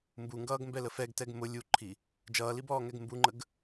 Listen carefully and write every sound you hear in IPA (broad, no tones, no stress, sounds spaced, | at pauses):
m b u ŋ ɡ ʌː ɡ m b ɛ l ə f ɛ ɡ t ɛ ɡ m ʊ lʲ u ǃʰ i | d͡ʒ ʌː l i b ɔː ŋ ɛ ɡ m b u ŋ͡ǃ ə ɡ